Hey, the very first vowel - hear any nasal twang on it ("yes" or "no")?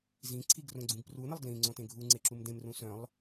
yes